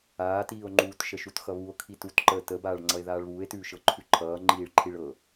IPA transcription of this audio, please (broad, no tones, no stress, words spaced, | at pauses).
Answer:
aːtiːo̯ŋ͡ǃuːt ʃəʃutxʌβuo̯ kʰitutǃəː təbaːɭŋ͡ǀʌe̯ ðaːɭβuːe̯tʉː ʃɤǃʰʉǃʰʌː ŋ͡ǃiːɭǃʰiɭɤ